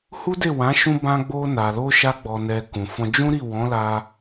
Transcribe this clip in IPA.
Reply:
h u˦ d e˦˨ w ã˨˦ ʃ ũ˧ b ã˧ ɡ͡b o˧ n a˨ l o˧ ʃ a˧ ɡ͡b ɔ˨ n ɛ˨ k ũ˨ f ɔ̃˧ d͡ʒ ũ˦ ɾ i˦˨ w ɔ̃˨˦ l a˧

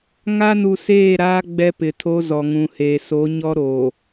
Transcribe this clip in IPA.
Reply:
ŋ a˦ n u˨ s eː˦˨ ɾ aː˦ ɡ͡b ɛ˦ p ɪ˨ tʰ o˦ z ɔ˨ ŋ ũ˨ h eː˨ s o˨˦ ɲ ɔ˦ ɾ o˨

